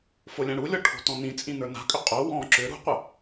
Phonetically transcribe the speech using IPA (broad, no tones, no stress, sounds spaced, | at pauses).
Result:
f o lʲ ã ɽ u lʲ ɔ ʈʰ o̤ t ɔ̃ n ĩ t͡sʼ ĩ n ə˞ n a̤ kʼ ʏ qʼ o w ɔ̃ ǁ ʏ ɾ ṳ qʷ ə